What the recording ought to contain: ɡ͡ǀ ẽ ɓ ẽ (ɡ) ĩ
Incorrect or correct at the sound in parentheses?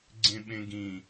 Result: correct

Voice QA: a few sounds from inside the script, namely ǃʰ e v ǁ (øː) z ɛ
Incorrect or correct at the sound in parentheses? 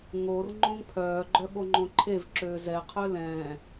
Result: correct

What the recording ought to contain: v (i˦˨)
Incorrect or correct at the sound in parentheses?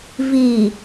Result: incorrect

